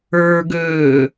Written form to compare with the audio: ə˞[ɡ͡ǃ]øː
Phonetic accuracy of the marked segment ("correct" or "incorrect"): incorrect